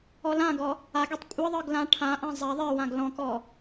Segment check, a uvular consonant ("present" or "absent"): absent